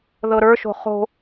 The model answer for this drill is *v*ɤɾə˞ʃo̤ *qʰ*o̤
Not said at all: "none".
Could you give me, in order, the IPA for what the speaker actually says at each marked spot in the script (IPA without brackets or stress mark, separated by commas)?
ð, χ